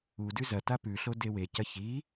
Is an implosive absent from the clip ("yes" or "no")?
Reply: yes